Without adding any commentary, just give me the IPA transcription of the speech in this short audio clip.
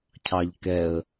cʰ ɑ ʎ k ɛ ə̯

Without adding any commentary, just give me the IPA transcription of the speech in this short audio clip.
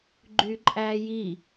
ɡ͡ǃ y ǃʼ æ j i

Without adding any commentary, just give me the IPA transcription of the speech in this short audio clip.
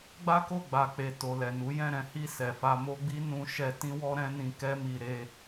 ɡ͡b a˦ k o˦˨ ɡ͡b a˨ k͡p e˨ t o˨ l ɛ˨ n u˨˦ j ɛ̃˦˨ ɾ ɛ̃˨˦ h i˦˨ s ɛ˨ f a˧ m o˦ ɡ͡b i˦ n ũ˧ ʃ ɛ˧ t ĩ˦ w ɔ˦ ɾ ɛ̃˦ n ĩ˧ k ɛ˦ m i˧ ɾ e˦

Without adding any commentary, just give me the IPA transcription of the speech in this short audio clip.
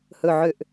h ɵ˨˩ ʕ ø˨˩ ʔ

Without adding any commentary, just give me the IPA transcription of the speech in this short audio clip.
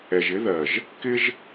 ɛ˨ ʒ ɪ˨˦ ð ɜ˨ ʒ | k ɪ˦ ʒ

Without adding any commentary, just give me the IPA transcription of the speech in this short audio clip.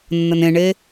nː ə n ẽ ɳ e

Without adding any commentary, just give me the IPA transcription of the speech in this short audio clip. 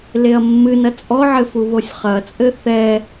l e ɐ̯ mː ɨ n ɐ t͡sʼ ɔ ʕ ɘ f u β o sʲ χ ɐ t͡sʼ ɘ θ ɛ

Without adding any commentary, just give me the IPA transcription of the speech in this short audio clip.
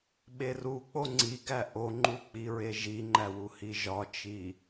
ɓ e r u k͡p o ŋ͡ǀ i ɡ æ ʔ o ŋ͡ǃ u k͡p i ɹ e ʒ i ŋ͡ǃ æ w u h i ʒ ɒ t͡ʃ i

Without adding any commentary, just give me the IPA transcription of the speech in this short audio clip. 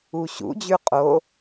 u ɕ ṵ d͡ʑ ʉ qʼ o

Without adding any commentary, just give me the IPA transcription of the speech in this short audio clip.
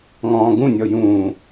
ŋ ɔ̃ː ɡ ũ nʲ ɔ j ũː

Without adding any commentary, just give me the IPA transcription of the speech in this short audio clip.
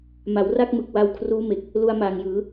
m a˩˦ w r a˥˩ k̚ m ɯ˨˩ k̚ w a˧ w kʰ r uː˦˥ m e˨˩ k̚ | l u˧ a̯ m aː˨˩ ŋ j ɯː˩˦

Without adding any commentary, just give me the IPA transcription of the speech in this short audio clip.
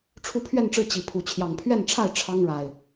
ʈ͡ʂʰ u˦ pʰ ɥ ɛ˥˨ n ʈ͡ʂ ɻ̩˥˨ t͡ɕ i˨˦ pʰ u˨˦ t͡ɕʰ j ɑ˨˩ ŋ pʰ ɥ ɛ˥˨ n ʈ͡ʂʰ a˥˨ ɪ̯ ʈ͡ʂʰ ɑ˦ ŋ ɻ a˨˩ ɪ̯

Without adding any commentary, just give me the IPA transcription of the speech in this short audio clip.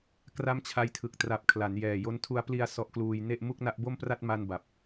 k r a˦˥ m t͡ɕʰ a˧ j tʰ ɯ˨˩ k̚ t r a˨˩ p̚ kʰ l a˩˦ n j ɛː˨˩ j o˦˥ n tʰ u˦˥ a̯ p l i˧ a̯ s ɔ˦˥ ʔ k l uː˧ j n e˥˩ ʔ m u˥˩ k̚ n a˦˥ ʔ b o˥˩ m p r a˥˩ t̚ m a˧ n b a˨˩ p̚

